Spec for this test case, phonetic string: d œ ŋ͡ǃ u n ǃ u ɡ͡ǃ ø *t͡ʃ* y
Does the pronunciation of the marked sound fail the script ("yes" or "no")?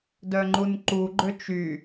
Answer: no